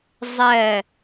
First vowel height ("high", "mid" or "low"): mid